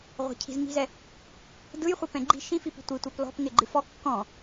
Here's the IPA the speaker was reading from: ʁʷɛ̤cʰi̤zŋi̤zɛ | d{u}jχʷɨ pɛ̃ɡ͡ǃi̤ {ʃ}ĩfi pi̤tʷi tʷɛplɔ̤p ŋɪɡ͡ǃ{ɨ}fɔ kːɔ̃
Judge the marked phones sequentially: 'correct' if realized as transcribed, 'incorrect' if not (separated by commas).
incorrect, correct, correct